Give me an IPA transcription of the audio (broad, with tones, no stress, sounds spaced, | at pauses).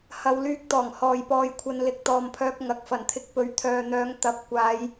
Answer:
h ɐ˧ w l yː˧ k̚ t̪ ɔː˨˩ ŋ h ɔː˨ j p ɔː˧ j kʷʰ ɐ˧ n l ɪ˨˥ k̚ t̪ ɔː˨ m pʰ œː˧ k̚ ŋ ɐ˨˥ k̚ f ɐ˨˩ n t̪ʰ ɪ˨˥ k̚ p ɵ˨˥ ɥ t̪ʰ œː˨ n̪ œː˨˧ ŋ t̪ ɐ˨˥ p̚ kʷ aː˨˧ j